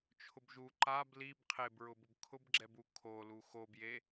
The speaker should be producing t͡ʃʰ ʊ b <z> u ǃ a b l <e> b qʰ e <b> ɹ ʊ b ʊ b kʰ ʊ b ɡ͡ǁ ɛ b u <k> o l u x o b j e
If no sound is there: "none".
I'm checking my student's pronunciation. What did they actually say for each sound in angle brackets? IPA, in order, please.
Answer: ʒ, i, b, kʰ

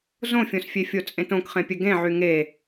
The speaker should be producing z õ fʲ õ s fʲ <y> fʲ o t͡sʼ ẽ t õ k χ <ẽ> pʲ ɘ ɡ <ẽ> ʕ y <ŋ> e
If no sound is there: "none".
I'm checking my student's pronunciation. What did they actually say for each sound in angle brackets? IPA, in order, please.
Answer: e, ẽ, ẽ, ŋ

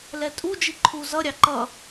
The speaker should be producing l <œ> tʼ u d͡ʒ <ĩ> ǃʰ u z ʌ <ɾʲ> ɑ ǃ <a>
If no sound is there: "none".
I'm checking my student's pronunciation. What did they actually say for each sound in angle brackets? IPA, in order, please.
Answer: ɛ, i, ɾʲ, ʌ

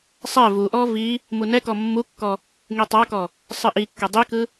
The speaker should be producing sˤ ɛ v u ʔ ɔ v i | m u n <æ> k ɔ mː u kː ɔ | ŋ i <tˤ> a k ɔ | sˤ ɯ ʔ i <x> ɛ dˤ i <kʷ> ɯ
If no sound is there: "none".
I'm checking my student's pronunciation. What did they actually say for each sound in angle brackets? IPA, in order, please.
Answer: ɛ, tˤ, kː, k

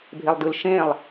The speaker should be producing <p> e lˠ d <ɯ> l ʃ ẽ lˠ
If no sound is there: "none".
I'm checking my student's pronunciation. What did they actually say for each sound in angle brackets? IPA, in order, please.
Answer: bʱ, ɯ

